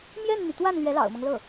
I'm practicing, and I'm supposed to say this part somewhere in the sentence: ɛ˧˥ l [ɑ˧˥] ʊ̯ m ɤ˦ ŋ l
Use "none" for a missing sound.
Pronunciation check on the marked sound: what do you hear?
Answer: ɑ̰˨˩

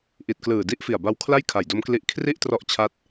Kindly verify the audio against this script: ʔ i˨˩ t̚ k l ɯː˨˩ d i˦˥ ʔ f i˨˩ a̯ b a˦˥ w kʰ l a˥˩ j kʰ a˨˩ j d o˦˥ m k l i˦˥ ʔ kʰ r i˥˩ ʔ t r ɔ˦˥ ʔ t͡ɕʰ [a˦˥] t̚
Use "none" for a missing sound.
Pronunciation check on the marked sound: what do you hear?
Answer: a˦˥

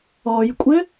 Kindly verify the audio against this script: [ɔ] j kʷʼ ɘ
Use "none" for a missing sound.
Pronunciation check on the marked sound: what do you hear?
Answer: ɔ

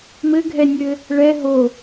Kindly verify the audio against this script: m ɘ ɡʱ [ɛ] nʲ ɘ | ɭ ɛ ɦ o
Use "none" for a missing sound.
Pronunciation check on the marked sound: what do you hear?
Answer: ɛ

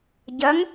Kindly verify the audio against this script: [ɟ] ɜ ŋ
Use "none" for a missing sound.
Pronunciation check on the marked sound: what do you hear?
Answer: ɟ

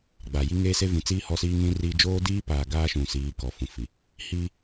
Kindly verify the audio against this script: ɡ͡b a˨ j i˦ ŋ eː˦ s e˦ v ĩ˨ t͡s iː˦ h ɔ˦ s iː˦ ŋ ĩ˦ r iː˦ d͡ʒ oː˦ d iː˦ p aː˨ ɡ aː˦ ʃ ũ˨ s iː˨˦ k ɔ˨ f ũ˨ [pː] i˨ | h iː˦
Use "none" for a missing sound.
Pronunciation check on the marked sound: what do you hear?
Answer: f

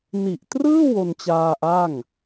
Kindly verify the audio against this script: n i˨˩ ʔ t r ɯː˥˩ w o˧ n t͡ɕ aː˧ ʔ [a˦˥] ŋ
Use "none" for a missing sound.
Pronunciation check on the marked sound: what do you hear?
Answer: a˥˩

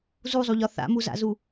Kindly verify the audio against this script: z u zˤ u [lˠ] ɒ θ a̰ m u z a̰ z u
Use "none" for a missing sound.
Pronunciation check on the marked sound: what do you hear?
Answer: ʎ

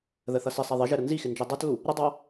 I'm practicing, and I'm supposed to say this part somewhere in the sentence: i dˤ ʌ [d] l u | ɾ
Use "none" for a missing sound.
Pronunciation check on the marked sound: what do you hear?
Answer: t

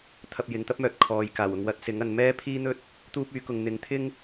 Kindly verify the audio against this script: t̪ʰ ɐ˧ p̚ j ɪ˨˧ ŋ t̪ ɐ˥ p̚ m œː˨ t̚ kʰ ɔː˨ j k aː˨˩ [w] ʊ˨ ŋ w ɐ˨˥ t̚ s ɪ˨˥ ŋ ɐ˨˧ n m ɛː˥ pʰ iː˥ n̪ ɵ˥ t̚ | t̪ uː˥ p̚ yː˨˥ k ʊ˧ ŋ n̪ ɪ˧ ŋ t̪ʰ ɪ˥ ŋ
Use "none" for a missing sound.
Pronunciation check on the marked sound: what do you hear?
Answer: w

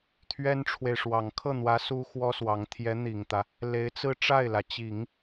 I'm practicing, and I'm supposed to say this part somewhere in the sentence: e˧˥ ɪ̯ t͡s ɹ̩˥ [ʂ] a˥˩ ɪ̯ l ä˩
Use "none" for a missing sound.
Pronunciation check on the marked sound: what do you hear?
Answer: ʈ͡ʂ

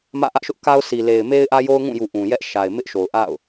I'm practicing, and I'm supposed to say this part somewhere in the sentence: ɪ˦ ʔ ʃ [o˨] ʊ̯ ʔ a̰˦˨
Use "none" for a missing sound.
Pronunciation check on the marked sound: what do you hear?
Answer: o˨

